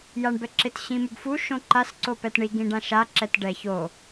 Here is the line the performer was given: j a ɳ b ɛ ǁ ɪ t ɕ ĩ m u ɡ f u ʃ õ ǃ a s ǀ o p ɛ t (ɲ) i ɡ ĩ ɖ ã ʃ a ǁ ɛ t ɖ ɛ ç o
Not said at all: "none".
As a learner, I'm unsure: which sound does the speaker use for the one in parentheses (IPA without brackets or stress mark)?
ɳ